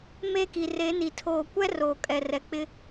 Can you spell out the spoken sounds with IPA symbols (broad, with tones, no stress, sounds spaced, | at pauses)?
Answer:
m e˦ k i˨ r e˨˦ n i˨ tʰ oː˨ kʷ ɛ˦ r oː˨ kʼ ɛ˨ r ɛ˨ k͡p ɪ˦